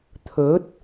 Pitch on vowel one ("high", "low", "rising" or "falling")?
rising